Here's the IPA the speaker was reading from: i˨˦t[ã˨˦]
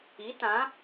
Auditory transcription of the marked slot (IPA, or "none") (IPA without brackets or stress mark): ã˨˦